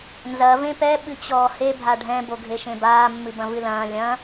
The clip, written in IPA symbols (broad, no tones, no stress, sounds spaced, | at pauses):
n z ɐ v ẽ p ɛ ɓ ɨ t͡ɕ ɔː h e bʱ a ɖʱ ɛ̃ b o ɡʱ e ʃ ẽ b aː mː ɨ b ɐ̃ v ɨ l ɐ̃ː lʲ ɐ̃